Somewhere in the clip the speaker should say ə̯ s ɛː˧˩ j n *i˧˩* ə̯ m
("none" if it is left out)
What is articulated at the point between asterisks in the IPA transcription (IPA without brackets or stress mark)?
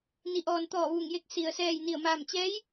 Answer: i˧˩